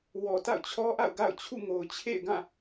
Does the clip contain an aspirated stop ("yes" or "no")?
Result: yes